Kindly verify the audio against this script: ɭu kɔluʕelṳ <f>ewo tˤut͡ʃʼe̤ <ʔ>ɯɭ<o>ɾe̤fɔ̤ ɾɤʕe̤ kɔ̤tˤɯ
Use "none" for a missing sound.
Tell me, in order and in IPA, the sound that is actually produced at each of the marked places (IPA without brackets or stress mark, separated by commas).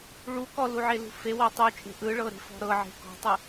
f, ʔ, ɤ